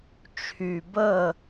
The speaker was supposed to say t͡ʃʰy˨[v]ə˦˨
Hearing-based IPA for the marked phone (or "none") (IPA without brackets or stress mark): b